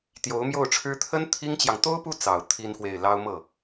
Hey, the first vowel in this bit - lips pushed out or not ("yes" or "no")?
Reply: yes